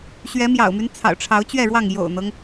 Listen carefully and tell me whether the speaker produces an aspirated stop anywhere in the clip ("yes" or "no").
yes